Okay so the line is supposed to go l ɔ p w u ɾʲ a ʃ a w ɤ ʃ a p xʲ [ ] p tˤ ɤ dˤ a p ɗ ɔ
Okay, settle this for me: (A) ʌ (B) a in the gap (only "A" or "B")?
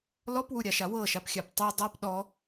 B